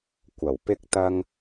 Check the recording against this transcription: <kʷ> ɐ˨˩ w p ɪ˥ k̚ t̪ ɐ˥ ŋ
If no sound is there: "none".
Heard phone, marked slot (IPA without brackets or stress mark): kʷ